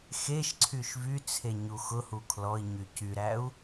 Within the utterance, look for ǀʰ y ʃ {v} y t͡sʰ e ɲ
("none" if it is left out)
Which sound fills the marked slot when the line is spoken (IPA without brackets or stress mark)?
v